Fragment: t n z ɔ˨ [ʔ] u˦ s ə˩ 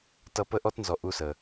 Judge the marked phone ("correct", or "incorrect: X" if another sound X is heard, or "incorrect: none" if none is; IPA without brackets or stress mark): correct